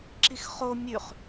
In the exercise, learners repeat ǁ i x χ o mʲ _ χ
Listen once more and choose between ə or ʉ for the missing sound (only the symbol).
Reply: ʉ